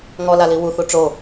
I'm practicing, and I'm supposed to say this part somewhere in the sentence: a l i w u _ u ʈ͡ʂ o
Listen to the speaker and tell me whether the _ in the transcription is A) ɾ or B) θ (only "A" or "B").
B